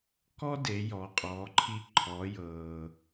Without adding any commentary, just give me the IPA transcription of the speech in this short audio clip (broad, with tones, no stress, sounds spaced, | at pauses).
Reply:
k ɔ˥ d e˩˧ j ɔ˩˧ qʼ ɔː˩˧ ǃʰ i˧ ǃʰ ɔ˩˧ j ɤː˩